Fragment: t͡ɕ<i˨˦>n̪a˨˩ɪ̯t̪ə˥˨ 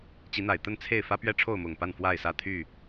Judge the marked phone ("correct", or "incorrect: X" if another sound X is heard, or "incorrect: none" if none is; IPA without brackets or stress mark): correct